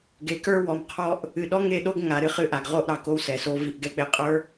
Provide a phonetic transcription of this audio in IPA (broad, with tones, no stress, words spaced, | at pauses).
ɡe˨kə˞˦wɔ˨mqʰɔ˦ʔ | ɨ˨ɗɔ˦ŋe˦˨ɗo˦ɡ ŋa˨˦ɾɨ˦χɨ˦ʔa˨ɡ ʁo˦ʔɾɑ˨ko˦w sɛ˨so˦ vi˦ʔɡɛ˦k͡pe˦ qʼə˞˦